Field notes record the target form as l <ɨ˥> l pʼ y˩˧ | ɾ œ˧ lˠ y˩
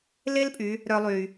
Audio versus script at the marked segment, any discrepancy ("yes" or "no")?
yes